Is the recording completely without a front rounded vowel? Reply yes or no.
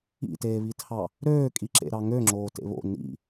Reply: no